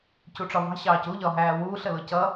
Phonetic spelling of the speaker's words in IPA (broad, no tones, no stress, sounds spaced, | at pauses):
c u ʈ͡ʂ ɒ v ɑ̤ ɕ ɑː c u ʎ ɒ ɦ æː w uː ɬ ə l ʊ c ʌ